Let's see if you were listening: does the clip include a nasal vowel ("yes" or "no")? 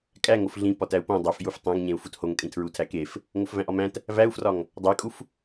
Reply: yes